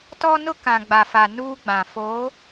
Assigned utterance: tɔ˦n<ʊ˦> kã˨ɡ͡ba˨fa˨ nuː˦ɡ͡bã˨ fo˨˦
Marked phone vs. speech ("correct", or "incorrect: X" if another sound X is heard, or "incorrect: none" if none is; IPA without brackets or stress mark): correct